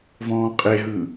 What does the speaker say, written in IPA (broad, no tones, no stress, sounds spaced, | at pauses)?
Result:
v ɔ̃ː qʼ e ɦ ɯ